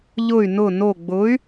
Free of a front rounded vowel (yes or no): no